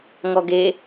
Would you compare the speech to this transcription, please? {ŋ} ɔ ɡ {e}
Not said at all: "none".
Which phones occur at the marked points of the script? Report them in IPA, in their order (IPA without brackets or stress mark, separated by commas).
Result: ŋ, e